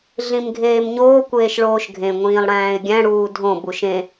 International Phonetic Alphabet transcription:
ɮĩmɡʱeːmɲoː kʷeːʃɭoːʃɡʱẽ ŋʷĩːlˠɽæ̃ːɪ̯ɡʲæ̃ ɽuːdʱõ buʃẽ

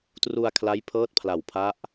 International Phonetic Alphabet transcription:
tru˧a̯kʰla˦˥jpʰɤː˦˥t̚pʰla˨˩w pʰa˦˥ʔ

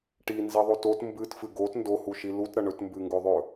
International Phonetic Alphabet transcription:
ʈinziðˤot ot mbɨtfɨ ɡot ndohuʃi lutɾɐ ɳɵtmbɨŋɡɵðˤɵ

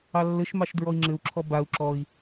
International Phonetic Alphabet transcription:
ɑlːɘʃmɑʃ dɹɔi̯ŋ͡ǁɘu̯ǁʰɔ bau̯ ǁɔi̯

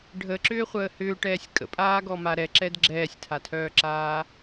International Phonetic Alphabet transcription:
ɖʱəǁʏːχʷəː hʏːʈɛːsʲ kʼə̰pʼaːɡɔma ɾɛǁɛd ɡ͡ǁɛːsʲtʰatʰœːǁaː

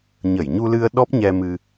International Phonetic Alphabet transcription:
ɲə˧˩jɲu˧lɨ˧ə̯ ɗɔ˦˥p̚ɲɛ˧ mɨ˧

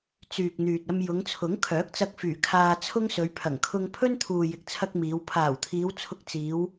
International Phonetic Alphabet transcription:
t͡syː˨k̚n̪yː˨t̚ɐ˧m jʊ˨˧ŋt͡sʰʊ˨˥ŋkʰœː˨˥k̚ t͡sɐ˧k̚fyː˨˩ kʰaː˧t͡sʰʊ˥ŋsɵ˨˧ɥ pʰɐ˨˩ŋkʰʊ˧ŋ pʰɵ˥nt̪ʰuː˨jɪ˨k̚t͡sʰɐ˧k̚ miː˨˧w pʰaː˨˩wt̪ʰiː˨˧w t͡sʰʊ˧k̚t͡siː˨˧w

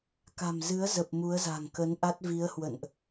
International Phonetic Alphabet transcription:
ka̤˨˩mzɨ˨˦ə̯zə˨˩p̚ mu˨˦ə̯za̤˨˩ŋkə˨˦n ʔa˦˥t̚vi˨˦ə̯hwə̰˧˨nʔ

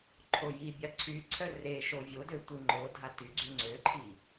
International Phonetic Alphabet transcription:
ǃʰoji bʲaǀʰy ǀʰœre ʃovʲodøtʷi ŋ͡ǃo dʱaty ɡ͡ǀyŋ͡ǀøǃʰi

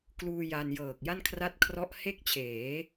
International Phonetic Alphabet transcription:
kluː˧ ja˧njɤː˨˩k̚ ja˥˩nkʰra˥˩t̚kʰrɔ˥˩ʔ he˥˩k̚t͡ɕʰeː˩˦

